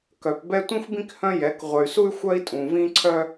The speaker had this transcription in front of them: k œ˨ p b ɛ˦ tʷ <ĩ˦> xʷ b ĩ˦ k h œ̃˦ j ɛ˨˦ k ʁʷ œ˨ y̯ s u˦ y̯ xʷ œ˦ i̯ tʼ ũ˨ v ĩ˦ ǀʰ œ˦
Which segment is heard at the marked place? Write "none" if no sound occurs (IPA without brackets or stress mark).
ĩ˦